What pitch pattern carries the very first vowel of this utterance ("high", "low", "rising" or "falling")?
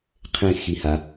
falling